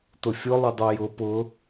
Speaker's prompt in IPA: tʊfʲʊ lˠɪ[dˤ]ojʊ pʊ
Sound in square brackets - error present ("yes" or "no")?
no